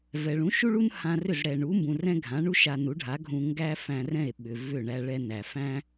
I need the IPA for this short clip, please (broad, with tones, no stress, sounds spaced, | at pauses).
v ɛ˩ ɭ ũ˩˥ ʃ u˥ ɭ u˥ n h ã˧ r ʏ˥˩ z ɽ ɛ˩ ɳ u˩˥ m b ũ˩ r ɛ̃˥ ɡʱ ã˩˥ ɳ u˥ ʃ a˧ n u˩˥ ɖʱ a˩˥ ɡʱ ũ˧ ŋ ɡ æ˥ f æ̃˧ r ɛ̃˥˩ e̯ ɓ ʏ˩ v ʏ˥˩ ɳ æ˧ ɭ ɛ˧ n æ˩ f æ̃˥